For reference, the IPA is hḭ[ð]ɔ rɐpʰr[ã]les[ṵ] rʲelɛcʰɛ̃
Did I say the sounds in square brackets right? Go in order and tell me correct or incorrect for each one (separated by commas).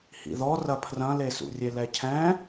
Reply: correct, incorrect, correct